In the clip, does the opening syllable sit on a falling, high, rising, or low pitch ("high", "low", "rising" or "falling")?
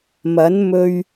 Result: rising